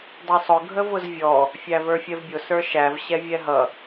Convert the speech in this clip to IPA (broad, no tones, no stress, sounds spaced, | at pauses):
dˤ ə˞ sˤ ʊ ɡʱ ə v ʊ z vʲ ɔ | fʲ æ v ə˞ fʲ ɛ v bʲ ʊ s ə˞ ʃ æ v ɕ ɛ vʲ ɛ ɦ ʌ